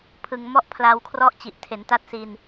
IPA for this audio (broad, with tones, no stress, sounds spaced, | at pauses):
pʰ ɯ˨˩ ŋ m ɔ˥˩ ʔ pʰ l a˧ w kʰ r ɔ˥˩ ʔ t͡ɕ i˨˩ ʔ tʰ e˩˦ n t a˦˥ t̚ s i˧ n